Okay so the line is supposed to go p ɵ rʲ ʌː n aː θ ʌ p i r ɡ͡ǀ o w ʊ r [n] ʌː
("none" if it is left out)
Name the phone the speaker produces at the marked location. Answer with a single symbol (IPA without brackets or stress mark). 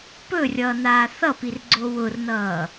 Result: n